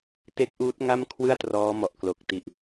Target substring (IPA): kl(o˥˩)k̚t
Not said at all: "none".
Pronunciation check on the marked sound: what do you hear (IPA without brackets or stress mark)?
o˨˩